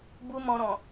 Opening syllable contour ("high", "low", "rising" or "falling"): high